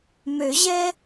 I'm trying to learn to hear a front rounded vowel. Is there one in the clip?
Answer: yes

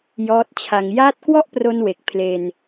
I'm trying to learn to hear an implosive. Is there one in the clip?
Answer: no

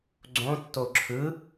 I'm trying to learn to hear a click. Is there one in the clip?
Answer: yes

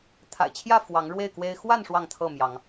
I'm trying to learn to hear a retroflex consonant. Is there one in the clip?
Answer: yes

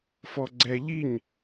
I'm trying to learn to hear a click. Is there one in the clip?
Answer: yes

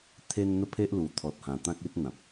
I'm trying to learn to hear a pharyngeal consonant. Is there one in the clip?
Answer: no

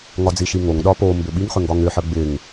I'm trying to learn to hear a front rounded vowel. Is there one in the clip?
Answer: yes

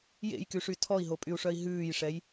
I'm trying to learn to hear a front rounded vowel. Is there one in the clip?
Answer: yes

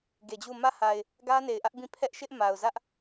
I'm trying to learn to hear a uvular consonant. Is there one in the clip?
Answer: no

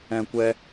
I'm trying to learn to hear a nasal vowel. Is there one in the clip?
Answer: yes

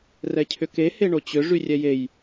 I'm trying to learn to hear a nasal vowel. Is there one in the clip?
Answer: no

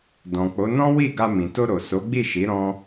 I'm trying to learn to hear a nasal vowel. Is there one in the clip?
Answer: yes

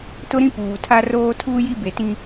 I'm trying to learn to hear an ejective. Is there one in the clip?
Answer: no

